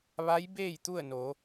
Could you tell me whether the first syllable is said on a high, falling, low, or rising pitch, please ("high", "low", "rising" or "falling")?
rising